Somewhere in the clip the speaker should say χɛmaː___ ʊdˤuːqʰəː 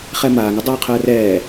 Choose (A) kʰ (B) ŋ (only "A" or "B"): B